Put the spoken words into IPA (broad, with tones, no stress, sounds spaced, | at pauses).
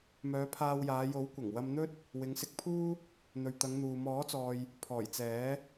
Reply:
m œː˨˧ pʰ aː˧ w j aː˨˧ j o˨˥ w kʷ ɐ˨˩ ŋ w ɐ˧ m n̪ ɵ˥ t̚ | w ɪ˨˧ ŋ s ɪ˧ k̚ pʰ uː˥ | n̪ ɵ˨ ɥ t̪ ɐ˨˧ ŋ n̪ uː˨ m ɔː˨˥ t͡s ɔː˨ j | pʰ ɔː˨˩ j t͡s ɛː˨˥